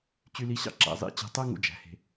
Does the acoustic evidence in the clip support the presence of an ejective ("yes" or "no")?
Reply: no